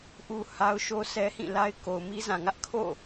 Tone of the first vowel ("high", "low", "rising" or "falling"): high